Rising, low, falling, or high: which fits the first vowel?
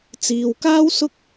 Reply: low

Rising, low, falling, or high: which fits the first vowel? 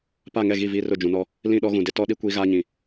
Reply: falling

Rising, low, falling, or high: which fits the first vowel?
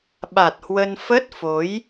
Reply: low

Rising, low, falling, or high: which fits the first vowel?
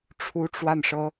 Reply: high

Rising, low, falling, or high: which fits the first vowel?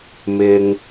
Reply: low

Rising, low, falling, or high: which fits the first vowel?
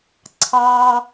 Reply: high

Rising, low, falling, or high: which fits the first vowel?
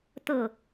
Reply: falling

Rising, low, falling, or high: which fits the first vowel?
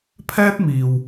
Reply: high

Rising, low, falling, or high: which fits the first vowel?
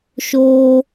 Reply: high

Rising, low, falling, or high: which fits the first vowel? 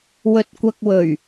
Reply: low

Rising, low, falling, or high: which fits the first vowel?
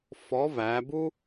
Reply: rising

